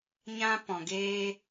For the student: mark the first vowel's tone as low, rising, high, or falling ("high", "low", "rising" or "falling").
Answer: high